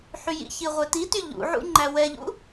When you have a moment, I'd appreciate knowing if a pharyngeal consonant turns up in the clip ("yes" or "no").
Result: yes